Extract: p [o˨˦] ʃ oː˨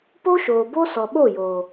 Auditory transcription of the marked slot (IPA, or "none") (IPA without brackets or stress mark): o˦